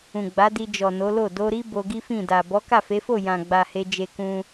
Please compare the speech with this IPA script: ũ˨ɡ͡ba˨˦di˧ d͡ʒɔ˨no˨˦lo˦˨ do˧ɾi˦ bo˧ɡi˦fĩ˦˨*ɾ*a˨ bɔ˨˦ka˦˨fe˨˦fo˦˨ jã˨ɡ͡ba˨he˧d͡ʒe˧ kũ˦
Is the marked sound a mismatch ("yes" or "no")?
yes